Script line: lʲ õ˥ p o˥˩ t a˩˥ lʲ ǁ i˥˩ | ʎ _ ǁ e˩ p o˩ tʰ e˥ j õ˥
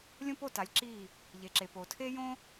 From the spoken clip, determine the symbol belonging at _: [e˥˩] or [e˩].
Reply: e˩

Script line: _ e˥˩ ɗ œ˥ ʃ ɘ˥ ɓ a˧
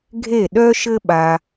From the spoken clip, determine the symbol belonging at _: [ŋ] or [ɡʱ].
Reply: ɡʱ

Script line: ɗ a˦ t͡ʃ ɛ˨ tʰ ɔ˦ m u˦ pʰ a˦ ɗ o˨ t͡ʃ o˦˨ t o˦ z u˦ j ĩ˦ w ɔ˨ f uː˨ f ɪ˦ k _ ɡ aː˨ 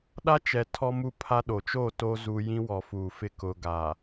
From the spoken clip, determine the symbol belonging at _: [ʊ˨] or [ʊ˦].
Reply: ʊ˦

